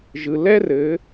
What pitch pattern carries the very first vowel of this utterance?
low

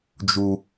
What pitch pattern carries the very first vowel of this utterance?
high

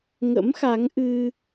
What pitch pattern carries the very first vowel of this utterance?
rising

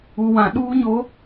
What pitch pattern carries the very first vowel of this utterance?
low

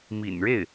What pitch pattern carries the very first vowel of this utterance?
low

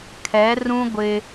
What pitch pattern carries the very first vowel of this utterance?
rising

